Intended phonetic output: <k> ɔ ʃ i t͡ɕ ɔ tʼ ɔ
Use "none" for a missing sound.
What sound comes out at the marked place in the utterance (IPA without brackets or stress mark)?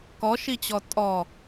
k